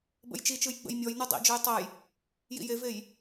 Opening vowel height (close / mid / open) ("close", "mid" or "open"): mid